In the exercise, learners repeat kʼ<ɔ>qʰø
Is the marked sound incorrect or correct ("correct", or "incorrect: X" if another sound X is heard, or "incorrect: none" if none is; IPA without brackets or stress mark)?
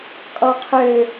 correct